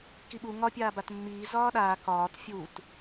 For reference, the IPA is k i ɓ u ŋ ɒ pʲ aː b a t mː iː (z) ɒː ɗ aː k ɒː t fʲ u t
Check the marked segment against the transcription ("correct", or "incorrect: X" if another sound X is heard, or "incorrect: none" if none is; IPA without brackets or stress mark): correct